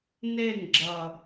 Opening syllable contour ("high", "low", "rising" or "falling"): falling